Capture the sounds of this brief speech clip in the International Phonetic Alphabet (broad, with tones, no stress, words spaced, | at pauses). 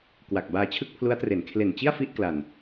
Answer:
kwa˨˩k̚baː˧ t͡ɕʰɯ˥˩k̚pʰlu˦˥a̯tre˩˦n kʰle˨˩nt͡ɕi˥˩a̯ fi˥˩ʔkla˨˩n